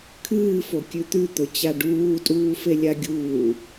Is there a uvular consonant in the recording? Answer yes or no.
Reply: no